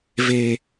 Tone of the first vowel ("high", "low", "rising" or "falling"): low